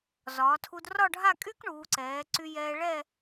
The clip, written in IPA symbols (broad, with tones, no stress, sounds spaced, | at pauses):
z ɒː˩˧ tʰ u˧ d r ɒ˥˧ ɖʱ a˥˧ kʼ y˥ k ɳ uː˩˧ ǀ ɛː˩˧ ǀ y˧ j ɛː˧ ɭ ɛ˥˧